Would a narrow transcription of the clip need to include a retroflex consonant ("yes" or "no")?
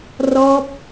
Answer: no